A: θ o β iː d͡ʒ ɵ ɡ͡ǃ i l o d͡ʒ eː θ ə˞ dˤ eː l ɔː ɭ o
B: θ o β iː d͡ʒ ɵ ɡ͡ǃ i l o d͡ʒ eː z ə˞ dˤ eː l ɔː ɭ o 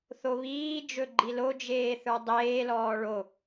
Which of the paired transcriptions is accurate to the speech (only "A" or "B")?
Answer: A